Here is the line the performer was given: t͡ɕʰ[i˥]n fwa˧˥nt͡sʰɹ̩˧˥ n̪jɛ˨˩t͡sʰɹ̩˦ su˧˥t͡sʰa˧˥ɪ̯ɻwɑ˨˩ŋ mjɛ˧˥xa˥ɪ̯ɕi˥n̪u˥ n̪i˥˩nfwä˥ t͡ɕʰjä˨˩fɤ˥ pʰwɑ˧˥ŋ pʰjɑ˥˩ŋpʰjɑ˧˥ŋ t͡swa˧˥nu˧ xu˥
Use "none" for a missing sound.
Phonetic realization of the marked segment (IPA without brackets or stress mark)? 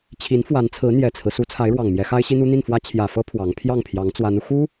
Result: i˧˥